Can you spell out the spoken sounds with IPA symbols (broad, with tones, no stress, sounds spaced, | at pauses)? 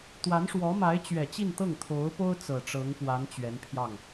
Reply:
t̪ w a˧˥ n ʂ w ɔ˧˥ m a˧˥ ɪ̯ t͡ɕ ɥ ɛ˨˩ t͡ɕ i˥˧ n t̪ ɤ˥˩ ŋ t̪ʰ o˧˥ ʊ̯ p o˥ ʊ̯ t͡s ɤ˨˩ ʈ͡ʂ ɤ˧˥ ŋ p w a˧˥ n t͡ɕ ɥ ɛ˧˥ n pʰ j ɑ˥˩ ŋ